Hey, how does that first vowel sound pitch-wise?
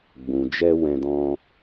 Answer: low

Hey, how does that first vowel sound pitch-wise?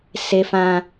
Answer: high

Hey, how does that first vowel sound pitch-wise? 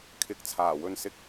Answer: rising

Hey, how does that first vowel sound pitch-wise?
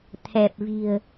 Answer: low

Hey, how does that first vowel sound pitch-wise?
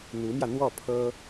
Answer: rising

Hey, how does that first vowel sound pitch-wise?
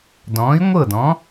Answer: rising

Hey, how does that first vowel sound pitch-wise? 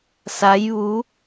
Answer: rising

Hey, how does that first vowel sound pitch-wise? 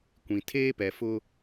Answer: low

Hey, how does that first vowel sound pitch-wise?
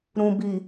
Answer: low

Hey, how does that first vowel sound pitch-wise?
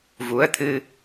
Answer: rising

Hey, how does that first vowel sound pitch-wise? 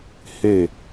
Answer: falling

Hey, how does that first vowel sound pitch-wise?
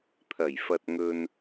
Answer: low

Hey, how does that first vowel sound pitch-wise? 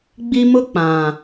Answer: high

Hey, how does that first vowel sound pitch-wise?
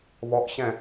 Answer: rising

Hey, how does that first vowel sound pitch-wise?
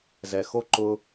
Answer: low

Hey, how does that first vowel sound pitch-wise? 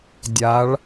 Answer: rising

